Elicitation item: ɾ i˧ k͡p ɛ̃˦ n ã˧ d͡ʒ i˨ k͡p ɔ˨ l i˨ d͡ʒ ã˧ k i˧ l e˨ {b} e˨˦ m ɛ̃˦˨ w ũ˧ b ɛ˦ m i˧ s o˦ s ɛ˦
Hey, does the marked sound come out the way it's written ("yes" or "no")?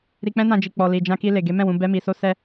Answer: no